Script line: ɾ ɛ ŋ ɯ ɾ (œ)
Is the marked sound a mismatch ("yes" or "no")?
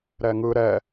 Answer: yes